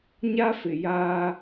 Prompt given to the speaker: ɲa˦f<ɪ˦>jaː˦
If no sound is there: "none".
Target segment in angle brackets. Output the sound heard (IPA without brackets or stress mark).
ɪ˨